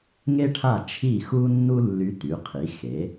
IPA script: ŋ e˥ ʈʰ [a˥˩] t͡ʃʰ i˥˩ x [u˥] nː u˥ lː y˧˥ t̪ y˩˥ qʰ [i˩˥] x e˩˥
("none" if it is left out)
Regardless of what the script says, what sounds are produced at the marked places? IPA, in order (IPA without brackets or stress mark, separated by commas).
a˥˩, u˥, i˩˥